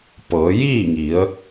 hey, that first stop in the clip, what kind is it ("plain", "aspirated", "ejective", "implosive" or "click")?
plain